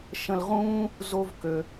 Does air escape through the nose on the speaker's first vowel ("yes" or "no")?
yes